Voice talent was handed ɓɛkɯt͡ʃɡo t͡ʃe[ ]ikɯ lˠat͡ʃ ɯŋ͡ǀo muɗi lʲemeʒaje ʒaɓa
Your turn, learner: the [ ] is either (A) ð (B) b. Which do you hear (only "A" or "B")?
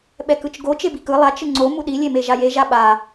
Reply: B